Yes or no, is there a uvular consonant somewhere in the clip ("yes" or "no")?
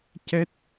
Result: no